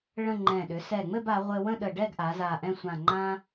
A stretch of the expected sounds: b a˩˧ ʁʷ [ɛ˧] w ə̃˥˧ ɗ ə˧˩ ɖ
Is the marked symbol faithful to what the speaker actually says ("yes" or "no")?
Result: no